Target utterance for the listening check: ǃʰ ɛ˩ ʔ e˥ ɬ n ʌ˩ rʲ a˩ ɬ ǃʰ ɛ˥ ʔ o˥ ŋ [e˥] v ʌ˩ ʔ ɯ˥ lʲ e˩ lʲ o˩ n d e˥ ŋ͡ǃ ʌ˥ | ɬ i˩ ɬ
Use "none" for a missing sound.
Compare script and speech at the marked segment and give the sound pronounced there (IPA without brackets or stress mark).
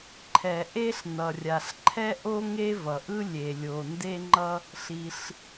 e˥